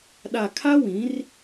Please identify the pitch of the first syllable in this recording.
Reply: low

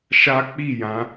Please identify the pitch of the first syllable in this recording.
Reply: high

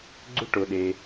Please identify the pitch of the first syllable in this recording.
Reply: high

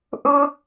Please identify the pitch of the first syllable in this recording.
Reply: high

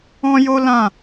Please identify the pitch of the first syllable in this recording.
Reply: high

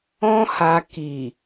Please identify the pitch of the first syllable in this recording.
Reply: high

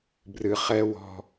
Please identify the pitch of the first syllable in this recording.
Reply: low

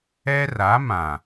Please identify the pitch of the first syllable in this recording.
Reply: high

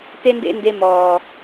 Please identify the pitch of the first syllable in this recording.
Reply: high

